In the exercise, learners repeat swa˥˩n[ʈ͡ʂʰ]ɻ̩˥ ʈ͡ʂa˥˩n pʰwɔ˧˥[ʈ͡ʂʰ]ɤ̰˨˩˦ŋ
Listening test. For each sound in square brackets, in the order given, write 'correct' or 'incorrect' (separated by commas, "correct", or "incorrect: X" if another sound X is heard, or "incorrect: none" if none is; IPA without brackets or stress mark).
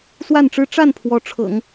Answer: incorrect: ʈ͡ʂ, correct